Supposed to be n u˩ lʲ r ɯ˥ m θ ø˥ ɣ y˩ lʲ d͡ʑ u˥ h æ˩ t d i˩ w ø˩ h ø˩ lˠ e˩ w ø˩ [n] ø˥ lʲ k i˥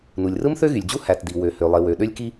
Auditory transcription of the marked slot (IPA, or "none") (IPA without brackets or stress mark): ɗ